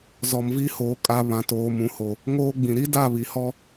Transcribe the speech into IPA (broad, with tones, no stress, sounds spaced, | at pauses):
z ɔ˨ m v i˦ h oː˨ kʼ a˨ β ã˨ t oː˨ m ũ˨ h o˨ | ŋ oː˦ ɡ͡b ĩ˨ ɾ i˦ d a˦˨ β i˨ h ɔ˦